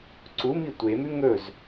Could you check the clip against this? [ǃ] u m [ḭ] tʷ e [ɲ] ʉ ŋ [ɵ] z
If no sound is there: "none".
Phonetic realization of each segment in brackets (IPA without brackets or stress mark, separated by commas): ǀ, i, m, ɵ